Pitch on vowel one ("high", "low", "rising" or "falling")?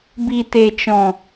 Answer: low